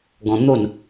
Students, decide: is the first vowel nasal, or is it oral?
nasal